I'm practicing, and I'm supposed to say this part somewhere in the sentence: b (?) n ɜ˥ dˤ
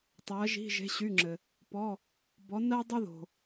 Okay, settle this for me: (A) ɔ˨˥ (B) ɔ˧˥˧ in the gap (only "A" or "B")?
A